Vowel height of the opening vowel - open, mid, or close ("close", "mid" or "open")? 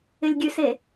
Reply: close